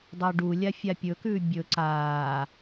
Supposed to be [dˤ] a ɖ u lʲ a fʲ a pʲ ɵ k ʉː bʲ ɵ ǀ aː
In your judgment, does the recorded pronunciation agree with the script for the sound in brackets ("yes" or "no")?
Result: yes